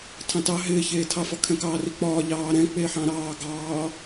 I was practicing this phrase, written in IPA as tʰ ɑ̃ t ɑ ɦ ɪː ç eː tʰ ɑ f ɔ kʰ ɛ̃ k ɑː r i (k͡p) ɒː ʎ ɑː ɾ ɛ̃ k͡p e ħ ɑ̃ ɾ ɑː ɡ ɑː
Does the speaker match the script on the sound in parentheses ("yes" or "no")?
yes